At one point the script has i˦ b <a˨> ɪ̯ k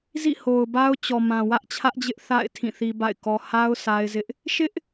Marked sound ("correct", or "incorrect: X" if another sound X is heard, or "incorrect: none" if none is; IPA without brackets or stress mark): incorrect: a̰˦˨